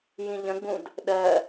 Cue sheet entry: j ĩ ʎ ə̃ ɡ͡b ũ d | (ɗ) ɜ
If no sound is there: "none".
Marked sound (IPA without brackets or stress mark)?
ɗ